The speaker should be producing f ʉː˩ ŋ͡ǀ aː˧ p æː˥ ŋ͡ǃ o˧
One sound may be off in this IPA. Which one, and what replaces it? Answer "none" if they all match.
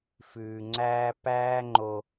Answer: aː˧ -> æː˧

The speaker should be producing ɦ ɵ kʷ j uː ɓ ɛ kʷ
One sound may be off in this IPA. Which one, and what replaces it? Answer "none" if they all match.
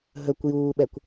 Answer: none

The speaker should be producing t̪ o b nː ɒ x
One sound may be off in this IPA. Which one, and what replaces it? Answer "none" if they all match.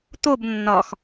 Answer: none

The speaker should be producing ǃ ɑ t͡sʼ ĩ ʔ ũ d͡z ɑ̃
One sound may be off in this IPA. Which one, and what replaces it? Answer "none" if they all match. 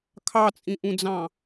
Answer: ǃ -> kʰ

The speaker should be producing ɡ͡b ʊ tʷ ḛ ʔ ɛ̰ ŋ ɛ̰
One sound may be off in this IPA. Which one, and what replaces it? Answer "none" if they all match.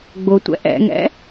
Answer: ḛ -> ɛ̰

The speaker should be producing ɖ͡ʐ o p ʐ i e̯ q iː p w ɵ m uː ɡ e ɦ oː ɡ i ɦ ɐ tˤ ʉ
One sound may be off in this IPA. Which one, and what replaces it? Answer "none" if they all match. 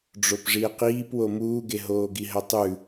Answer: ɵ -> o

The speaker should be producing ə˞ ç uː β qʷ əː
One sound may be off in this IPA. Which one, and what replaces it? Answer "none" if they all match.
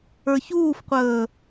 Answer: β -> f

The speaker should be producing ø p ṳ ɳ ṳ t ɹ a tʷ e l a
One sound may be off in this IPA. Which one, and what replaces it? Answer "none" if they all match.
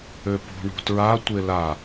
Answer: none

